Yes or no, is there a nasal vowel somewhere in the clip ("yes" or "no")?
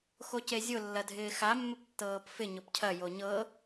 no